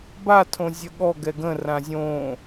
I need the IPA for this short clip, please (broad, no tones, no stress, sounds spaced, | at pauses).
b a tʰ õ zʲ ə ɠ ɔ ɡ ɛ ɡ ə̃ r ã zʲ õ